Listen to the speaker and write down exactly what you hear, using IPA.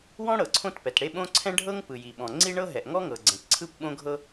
w ɔ̃˥ ɽ ɤ˩ ǀʰ õ˥ t p ɛ˩ t ɽ e˥ ɓ õ˥ ǀʰ ɛ̃˥ ɖʱ ɤ˥ ŋ p ɯ˩ j i˩ ɓ ɔ̃˩ ŋ͡ǀ i˥ ɳ ɤ˥ ɦ ɛ˩ ʔ ŋ ɔ˥ ŋ ɤ˩ ɡ͡ǀ ɛ̃˩ t ǀʰ ɯ˥ p ɓ õ˥ ɡʱ ɤ˥

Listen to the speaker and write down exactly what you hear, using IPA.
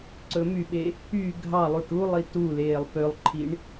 ǀ ɵ m y ɓ e | y ɡʱ ɑ lˠ u ʈ u lˠ i t u l eː lˠ p ø lˠ ǃʰ i ɳ

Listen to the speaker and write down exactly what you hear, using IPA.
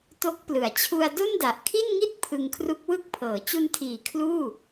t o˦˥ k̚ p l ɯ˩˦ a̯ t͡ɕʰ u˧ a̯ d o˥˩ n d a˨˩ ʔ kʰ i˥˩ n ŋ i˥˩ t̚ pʰ ɯ˧ ŋ kʰ r u˦˥ k̚ w ɯ˥˩ k̚ pʰ ɤː˩˦ t͡ɕ u˧ n tʰ iː˩˦ kʰ l uː˥˩

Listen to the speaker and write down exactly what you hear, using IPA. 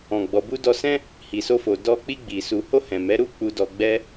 ɔ̃˨ ɡ͡b ɔ˨ b u˧ d ɔ˧ s ɛ̃˦ | h i˨ s o˧ f o˨ d ɔ˧ k͡p i˧ ɡ͡b i˨ s u˨ h o˧ h ɛ̃˨ m ɛ˨˦ ɾ u˦ k͡p u˧ d ɔ˧ ɡ͡b ɛ˦

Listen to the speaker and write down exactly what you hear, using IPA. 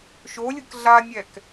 ʃ o lʲ ɯ k ɮ a nʲ ɛ k

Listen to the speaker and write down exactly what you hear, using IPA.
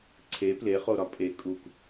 ǀʰ e p l e χ o ɾ ɒ pʼ e kʼ u k

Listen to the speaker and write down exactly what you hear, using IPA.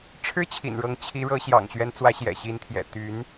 ʈ͡ʂʰ ɻ̩˥ t͡ɕʰ ḭ˨˩ n ɻ ɤ˧˥ ŋ t͡ɕʰ i˧˥ ɻ ɤ˧˥ ɕ j ɑ̰˨˩ ŋ ɕ ɥ ɛ˧˥ n t͡s w ä˧˥ ɕ j ɛ̰˨˩ ɕ i˧˥ n t̪ʰ j ɛ̰˨˩ t̪ y˧˥ n

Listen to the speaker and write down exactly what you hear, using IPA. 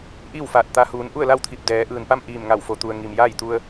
ʔ iː˥˨ w f aː˧˩ t̚ t̪ a˧ h uː˩˧ n ʔ u˥˨ ə̯ l a˥˨ w t̪ʰ i˧˩ p̚ d ɛː˩˧ ʔ ɯː˩ n p a˥˨ m ʔ iː˧˩ m ŋ a˧˩ w f o˧˩ t̪ u˩ ə̯ ŋ i˩ m j aː˥˨ j t̪ u˧ ə̯

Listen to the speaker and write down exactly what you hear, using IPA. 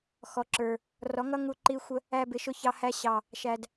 x ɔ˨ ǁ ə˞˨ | r ɔ˨˦ ŋ ʌ˦ ŋ u˧ ǃ i˧ xʷ ə˧ | æ˦ b ɪ˧ ʃ ʊ˦ ç ɑ˧ h æ˧ ɕ ɑ˨ | ʃ æ˨ d

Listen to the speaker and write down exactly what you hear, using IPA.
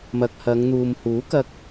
m ɐ˨ k̚ h ɐ˨˧ ŋ n̪ uː˨ m h uː˨˥ k ɐ˧ k̚

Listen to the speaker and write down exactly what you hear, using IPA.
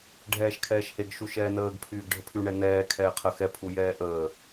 ɖʱ ɛː ʃ kʰ ɛː ʃ h e ɡ ʃ u ʃ ɛː n əː ɡ pʰ yː ɡ ɖʱ ə pʰ y ɳ ɛ n ɛː kʰ ɛː qʰ ə x ɛ pʰ u j ɛː ʔ əː

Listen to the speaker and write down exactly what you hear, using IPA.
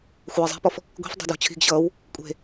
xʷ ɛː zˤ i̤ p ɔ f | ɡʷ i̤ f dˤ e̤ d j ɔ̤ t͡ɕʰ i̤ ɡ ɕ ʌː w | kʷʼ e̤

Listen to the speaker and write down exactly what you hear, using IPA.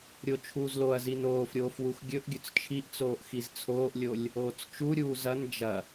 ɾʲ o t͡ʃʰ uː z l o ɐ̯ z i n oː f ɾʲ oː f w u x ɡʲ ɵ ʔ ɡʲ ɵ t͡s t͡ʃʰ i ʔ t͡s oː ʔ x i z t͡sʰ oː ʔ lʲ o lʲ | oː t͡s t͡ʃ u ɾʲ uː z ɐ n d͡ʒ ɐ

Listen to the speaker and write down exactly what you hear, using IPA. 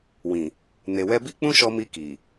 w ĩ˨ | n e˨ w ɛ˧ b i˦ k͡p ũ˦ ʃ ɔ˧ m i˧ k i˨

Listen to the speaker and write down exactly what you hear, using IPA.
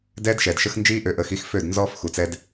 d ɛː˦ d ʃ ɛ˨ d ʃ ə˦ x n d͡ʒ iː˦ ʔ ø˨ ʔ əː˨ x i˦ x f ø˦˨ d n z ɔː˦ f x u˨ t͡s ɛ˦ d

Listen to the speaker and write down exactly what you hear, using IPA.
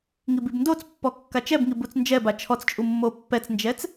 ŋ i b i b n d o t͡s pː ɔ kː a t͡ʃ ɛ b ŋ i b u t͡s n d͡ʒ ɛ b a t͡ʃʰ ɔ t͡s t͡ʃʼ u mː o pː ɛ t͡s n d͡ʒ ɛ t͡s

